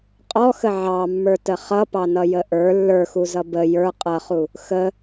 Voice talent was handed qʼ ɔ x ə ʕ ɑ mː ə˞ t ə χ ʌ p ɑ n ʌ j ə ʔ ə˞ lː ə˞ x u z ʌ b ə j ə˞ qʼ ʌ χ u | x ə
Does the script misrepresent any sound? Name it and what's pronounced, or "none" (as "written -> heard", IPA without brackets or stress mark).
none